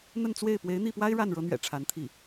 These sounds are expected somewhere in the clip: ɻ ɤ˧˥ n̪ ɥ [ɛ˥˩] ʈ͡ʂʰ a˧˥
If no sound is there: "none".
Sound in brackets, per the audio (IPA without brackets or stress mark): ɛ̰˨˩